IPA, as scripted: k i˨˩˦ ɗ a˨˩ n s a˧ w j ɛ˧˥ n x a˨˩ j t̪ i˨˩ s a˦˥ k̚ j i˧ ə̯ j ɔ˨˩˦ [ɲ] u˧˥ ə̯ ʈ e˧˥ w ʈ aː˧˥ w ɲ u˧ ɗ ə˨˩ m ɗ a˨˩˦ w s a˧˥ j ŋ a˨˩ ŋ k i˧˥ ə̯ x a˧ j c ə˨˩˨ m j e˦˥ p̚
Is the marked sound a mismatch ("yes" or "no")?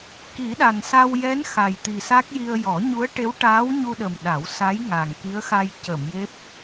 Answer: no